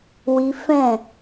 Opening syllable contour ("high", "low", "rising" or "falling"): high